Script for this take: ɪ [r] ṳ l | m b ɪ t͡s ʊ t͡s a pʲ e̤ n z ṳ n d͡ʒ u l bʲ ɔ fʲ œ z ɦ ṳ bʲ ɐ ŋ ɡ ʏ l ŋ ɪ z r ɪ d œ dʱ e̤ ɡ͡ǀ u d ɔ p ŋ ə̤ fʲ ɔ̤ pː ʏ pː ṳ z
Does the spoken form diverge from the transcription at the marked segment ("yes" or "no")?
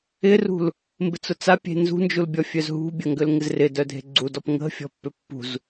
no